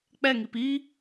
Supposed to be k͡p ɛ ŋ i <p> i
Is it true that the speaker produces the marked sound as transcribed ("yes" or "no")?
yes